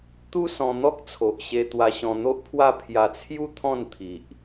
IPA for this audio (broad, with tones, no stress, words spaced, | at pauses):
t̪u˦sɔ̃˧ n̪ɔ˦k̚t͡sʰo˨ʔɕe˧ t̪wa˧ɕɔ̃˧n̪o˦ʔpʰwa˥˧ pʰja˧t͡sʰju˦ t̪ʰɔ̃˥˧nt̪ʰi˨ʔ